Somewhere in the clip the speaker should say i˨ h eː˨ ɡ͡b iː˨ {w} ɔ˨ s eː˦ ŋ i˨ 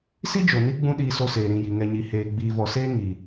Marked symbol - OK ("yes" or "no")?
no